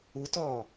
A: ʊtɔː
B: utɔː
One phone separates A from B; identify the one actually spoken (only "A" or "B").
B